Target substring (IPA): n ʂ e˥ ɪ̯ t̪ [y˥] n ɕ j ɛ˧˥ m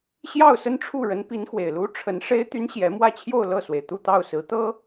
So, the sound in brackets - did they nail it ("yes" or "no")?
yes